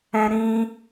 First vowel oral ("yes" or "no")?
no